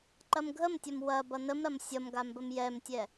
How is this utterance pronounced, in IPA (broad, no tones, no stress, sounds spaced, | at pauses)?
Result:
ǃ ɐ m ɡʱ ə m tʲ ɐ m w ɐ b ʌ n ə m ɾ ɐ m sʲ ʌ m ɡ a m b ə m j ɛ m tʲ ɛ